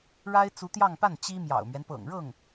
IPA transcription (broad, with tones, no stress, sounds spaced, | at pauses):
ɻ a˥ ɪ̯ t͡s u˧˥ t̪ j ɑ˥˧ ŋ p a˥˩ n t͡ɕ i˥ m j ɑ̰˨˩ ʊ̯ m ɥ ɛ˦ n p ɤ̰˨˩ ŋ ɻ ɤ˥˩ ŋ